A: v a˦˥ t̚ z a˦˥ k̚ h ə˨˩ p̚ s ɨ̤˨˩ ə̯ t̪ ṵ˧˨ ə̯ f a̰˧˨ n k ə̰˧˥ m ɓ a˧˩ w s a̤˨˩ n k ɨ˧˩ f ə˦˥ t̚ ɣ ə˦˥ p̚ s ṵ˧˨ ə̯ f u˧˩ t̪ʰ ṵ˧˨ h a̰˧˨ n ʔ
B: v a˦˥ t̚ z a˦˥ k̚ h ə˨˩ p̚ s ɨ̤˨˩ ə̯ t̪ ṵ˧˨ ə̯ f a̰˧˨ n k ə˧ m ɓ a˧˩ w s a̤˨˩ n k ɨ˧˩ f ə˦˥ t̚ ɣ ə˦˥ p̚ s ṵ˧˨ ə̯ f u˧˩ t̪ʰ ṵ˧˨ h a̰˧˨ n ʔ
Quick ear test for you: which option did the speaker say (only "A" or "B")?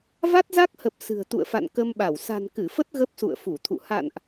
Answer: B